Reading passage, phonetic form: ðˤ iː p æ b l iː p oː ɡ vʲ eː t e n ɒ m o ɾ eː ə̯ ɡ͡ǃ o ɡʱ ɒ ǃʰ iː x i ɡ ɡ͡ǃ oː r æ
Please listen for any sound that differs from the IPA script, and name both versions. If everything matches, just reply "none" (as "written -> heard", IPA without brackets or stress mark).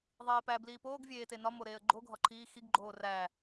none